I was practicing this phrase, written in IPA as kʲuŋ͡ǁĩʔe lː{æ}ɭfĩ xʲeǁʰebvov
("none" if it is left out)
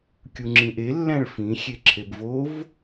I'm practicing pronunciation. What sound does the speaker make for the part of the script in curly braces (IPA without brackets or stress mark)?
æ̃